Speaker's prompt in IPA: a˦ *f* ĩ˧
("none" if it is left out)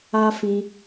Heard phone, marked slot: f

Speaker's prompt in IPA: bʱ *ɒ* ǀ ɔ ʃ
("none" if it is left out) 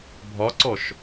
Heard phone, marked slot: ɒ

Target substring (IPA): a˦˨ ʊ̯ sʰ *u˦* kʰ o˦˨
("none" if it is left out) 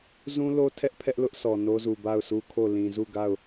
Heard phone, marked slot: u˦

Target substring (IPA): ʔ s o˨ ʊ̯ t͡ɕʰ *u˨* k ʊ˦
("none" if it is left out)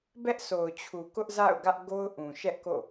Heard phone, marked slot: u˨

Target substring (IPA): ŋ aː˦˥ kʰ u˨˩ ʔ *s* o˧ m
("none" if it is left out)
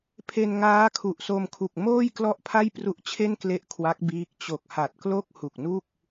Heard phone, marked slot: s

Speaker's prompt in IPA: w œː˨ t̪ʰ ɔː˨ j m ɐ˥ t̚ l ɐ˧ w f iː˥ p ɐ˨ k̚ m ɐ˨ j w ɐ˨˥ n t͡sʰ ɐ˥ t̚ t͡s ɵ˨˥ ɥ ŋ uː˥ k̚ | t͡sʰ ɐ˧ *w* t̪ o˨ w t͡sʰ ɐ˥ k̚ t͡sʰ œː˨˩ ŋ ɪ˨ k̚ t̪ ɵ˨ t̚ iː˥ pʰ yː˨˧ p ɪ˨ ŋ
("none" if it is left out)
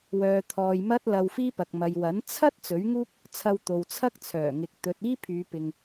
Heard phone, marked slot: w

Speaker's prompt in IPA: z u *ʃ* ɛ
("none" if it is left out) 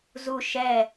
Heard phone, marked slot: ʃ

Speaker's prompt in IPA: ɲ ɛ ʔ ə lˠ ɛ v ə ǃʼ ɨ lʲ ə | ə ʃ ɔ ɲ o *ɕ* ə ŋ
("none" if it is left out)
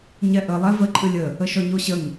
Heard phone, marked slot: ɕ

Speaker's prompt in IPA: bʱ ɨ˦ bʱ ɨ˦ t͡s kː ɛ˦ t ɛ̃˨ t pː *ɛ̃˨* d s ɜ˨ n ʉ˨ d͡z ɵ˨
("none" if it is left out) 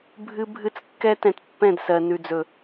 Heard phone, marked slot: ɛ̃˦˨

